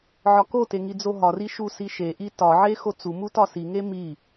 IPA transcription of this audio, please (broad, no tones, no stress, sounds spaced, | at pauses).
ʕ ɒ k o t e ŋ i d͡z o ɦ ɒ r i ʃ u s i ʃ e ʔ i t ɒ ʕ e x o t͡s u m u t ɒ s i ŋ e m i